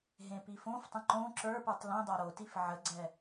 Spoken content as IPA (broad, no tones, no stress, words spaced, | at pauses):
ɦẽpifõftˤə̃ ǃõ ǁə˞pə˞tˤ lĩdˤa ɾotif ʕəɡ͡ǀɛ